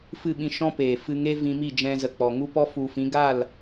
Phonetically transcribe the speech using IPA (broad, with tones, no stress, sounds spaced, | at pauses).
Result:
f ɨ˦˨ ɓ ĩ˧ ʃ ɔ̃˦ p eː˨ f ɨ˧ ŋ e˦ v ĩ˧ m i˦˨ d͡ʒ ɛ̃˧ z ə˨ k͡p ɔ˨ ŋ u˦ p ɔ˦ f u˨ f ĩ˨˦ ɡ a˦˨ l